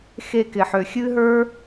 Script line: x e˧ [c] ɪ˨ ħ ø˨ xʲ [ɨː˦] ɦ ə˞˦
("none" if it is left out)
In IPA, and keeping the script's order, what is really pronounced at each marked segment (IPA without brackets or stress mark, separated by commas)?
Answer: k, ɨː˦